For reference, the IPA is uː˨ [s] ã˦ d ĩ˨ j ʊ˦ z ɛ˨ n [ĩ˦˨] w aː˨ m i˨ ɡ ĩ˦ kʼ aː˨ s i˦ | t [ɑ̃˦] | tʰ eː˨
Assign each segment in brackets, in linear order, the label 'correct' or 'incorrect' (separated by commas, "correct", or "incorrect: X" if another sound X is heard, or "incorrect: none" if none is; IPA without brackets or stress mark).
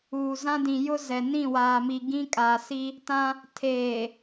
incorrect: z, correct, incorrect: ã˦